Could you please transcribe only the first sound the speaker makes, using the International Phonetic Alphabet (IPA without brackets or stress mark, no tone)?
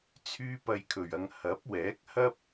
t͡sʰ